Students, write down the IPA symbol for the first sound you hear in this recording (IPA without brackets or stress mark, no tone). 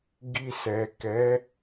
ɡ